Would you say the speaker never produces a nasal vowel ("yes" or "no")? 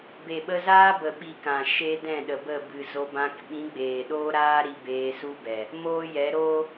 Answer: no